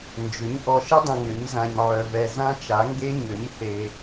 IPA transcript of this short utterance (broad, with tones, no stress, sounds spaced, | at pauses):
n d͡ʒ ʏ˩˥ ɲ ʔ ɔ˨ ʃ ə˦˥ dˤ ɐ̃˨ ŋ ʏ˩˥ ɲ z ã˨ ɲ ʕ œ˨ v ɛ˨ z ã˦˥ t͡ʃ a˩˥ ŋ ɡ e˦˥ ɲ ø˩˥ ɲ θ e˨